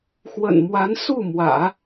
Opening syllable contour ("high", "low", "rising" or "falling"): low